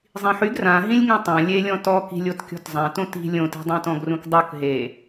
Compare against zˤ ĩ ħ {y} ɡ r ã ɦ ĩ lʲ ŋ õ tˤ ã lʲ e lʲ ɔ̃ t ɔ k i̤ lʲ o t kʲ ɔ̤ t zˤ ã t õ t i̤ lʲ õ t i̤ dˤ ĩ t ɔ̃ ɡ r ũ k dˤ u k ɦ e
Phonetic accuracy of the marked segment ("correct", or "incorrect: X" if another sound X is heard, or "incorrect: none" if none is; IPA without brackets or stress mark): correct